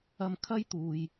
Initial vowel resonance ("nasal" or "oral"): oral